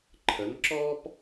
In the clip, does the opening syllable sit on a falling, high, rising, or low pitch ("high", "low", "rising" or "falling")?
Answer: rising